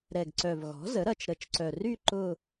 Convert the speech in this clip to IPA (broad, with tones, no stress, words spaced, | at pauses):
ɾɛ˨˩ɡǀœ˨˩v ɣɔ̤˩˥zə˩˥ɾɐ˨˩t͡ʃ ɾə˨˩t͡ʃǀœ˨˩ry˥˧ ǃʊ˥˧